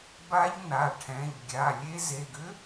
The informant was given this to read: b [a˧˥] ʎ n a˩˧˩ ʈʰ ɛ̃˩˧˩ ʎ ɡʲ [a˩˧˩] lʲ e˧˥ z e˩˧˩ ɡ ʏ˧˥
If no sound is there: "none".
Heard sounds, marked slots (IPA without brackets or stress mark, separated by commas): a˧˥, a˩˧˩